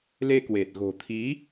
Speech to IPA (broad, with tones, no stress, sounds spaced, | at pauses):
l e˧ k w e˨˩ t̚ ɣ o̤˨˩ t̪ʰ i˨˦